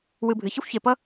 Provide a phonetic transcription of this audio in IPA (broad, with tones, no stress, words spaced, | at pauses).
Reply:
wɨ˨ bʱɨ˩çʌ˥xʷçe˨pʌ˥